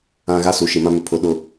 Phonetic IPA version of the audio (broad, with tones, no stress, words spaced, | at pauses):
ã˨ ɣa˦su˨ʃi˨mã˦ mɪ˨ pʰʊ˨ɗʊ˨